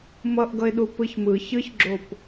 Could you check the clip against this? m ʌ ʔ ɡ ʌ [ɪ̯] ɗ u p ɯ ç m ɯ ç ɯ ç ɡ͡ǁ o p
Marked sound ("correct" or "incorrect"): correct